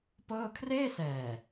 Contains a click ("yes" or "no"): no